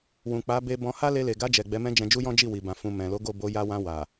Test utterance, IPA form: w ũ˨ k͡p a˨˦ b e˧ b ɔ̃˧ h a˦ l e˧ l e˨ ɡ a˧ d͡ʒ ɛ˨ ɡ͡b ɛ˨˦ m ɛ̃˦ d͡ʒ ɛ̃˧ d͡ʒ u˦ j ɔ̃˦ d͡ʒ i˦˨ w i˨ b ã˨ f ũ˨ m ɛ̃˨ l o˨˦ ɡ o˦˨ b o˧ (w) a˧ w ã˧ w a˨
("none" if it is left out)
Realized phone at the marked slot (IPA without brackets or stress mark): j